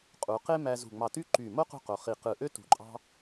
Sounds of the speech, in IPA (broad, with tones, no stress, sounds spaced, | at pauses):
qʼ u˩˧ q e˥ m æ˧ z ṳ˧˩ ŋ͡m ɑ˧˩ t y˥ ǃ y˧˩ m o˥ q ṳ˧ q o˩˧ χ i˧˩ q ɯ˧˩ ʔ ø˥ t ṳ˧˩ ǃʼ ɑ̤˥